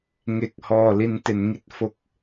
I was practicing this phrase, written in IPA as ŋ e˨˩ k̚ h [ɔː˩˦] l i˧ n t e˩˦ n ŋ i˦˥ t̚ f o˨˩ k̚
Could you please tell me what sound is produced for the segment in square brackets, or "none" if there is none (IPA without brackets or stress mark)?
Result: ɔː˨˩